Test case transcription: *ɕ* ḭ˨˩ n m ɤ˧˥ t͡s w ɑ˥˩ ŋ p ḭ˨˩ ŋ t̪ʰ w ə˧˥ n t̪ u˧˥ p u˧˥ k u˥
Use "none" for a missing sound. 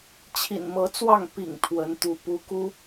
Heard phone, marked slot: t͡ɕʰ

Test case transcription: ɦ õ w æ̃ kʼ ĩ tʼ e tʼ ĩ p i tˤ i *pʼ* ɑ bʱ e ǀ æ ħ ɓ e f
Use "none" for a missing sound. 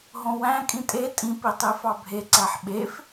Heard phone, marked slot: f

